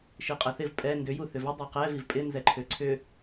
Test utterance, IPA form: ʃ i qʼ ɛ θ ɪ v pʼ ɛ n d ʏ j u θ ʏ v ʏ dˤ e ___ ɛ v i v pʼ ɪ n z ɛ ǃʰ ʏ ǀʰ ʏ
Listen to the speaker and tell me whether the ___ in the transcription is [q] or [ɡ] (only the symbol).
q